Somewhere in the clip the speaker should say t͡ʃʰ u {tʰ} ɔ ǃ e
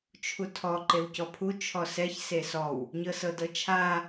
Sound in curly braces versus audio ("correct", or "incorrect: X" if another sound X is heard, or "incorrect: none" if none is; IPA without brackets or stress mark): correct